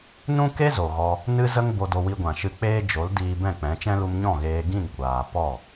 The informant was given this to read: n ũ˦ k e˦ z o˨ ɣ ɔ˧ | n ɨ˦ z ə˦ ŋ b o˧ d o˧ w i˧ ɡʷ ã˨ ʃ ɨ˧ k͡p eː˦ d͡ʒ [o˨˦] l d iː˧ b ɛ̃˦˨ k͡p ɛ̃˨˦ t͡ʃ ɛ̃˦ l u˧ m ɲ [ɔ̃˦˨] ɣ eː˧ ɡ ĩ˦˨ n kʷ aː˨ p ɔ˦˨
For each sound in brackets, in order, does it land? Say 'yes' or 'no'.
yes, yes

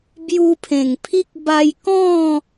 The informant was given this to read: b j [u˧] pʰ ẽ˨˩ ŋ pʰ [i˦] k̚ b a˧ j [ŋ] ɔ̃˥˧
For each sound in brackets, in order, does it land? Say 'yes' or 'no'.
yes, yes, no

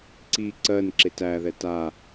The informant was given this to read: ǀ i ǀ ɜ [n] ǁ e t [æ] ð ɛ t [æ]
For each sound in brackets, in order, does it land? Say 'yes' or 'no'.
yes, yes, no

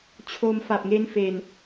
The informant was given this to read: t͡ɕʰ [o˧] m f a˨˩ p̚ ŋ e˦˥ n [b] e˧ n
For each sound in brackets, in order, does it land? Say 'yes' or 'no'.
yes, no

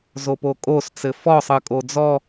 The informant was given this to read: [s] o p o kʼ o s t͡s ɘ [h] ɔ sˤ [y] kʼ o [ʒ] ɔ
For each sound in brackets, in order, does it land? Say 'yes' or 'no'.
no, no, no, no

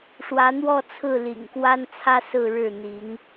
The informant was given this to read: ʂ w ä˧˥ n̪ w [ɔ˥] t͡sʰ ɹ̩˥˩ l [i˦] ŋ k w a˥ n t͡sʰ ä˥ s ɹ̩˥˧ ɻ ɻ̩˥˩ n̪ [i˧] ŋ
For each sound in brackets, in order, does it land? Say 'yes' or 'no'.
no, no, no

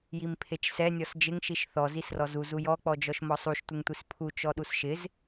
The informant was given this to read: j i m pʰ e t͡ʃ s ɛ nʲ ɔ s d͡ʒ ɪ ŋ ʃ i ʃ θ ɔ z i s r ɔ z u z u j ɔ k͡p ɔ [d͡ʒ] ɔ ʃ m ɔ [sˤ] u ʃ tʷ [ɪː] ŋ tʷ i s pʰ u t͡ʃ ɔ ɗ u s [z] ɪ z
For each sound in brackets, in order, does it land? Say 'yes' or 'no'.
yes, yes, no, no

